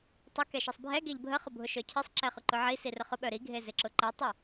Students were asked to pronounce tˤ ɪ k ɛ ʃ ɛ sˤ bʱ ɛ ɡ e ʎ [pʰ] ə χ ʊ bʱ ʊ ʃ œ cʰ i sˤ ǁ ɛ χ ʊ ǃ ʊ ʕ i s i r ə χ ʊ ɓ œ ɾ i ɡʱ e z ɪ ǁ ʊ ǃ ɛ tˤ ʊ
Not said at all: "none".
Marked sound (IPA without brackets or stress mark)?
bʱ